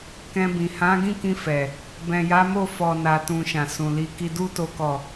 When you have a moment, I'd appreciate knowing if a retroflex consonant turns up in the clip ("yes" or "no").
no